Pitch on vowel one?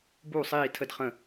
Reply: falling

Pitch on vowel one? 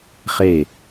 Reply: falling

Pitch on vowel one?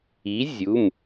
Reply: rising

